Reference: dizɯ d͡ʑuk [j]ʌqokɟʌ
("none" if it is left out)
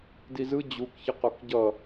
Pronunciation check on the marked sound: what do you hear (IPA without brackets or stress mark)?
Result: ç